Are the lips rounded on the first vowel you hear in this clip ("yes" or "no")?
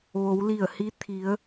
yes